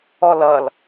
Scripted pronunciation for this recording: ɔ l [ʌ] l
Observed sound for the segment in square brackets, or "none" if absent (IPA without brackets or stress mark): ʌ